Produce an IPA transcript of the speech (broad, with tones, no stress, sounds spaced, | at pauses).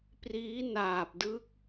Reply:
p r iː˦˥ n aː˨˩ p̚ d ɯ˦˥ k̚